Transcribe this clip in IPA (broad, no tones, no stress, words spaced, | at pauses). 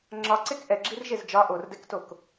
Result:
ŋ͡ǁɒǀek ʔɛɡ͡ǁirʒez d͡ʒɒ ʔordɛktok